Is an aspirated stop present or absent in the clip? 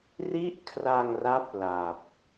present